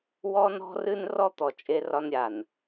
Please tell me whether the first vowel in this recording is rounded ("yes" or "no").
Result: yes